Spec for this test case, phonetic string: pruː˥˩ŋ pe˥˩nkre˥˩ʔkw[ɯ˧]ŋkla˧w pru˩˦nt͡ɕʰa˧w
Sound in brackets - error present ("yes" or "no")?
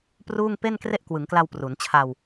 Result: yes